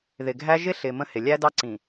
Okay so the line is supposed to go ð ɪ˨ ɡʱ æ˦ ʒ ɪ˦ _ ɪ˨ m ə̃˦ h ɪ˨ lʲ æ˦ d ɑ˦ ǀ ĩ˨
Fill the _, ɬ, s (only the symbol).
ɬ